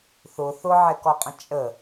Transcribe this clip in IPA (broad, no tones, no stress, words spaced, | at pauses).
θʊ θʊʕɛkɔqʼə̃ t͡ʃʼə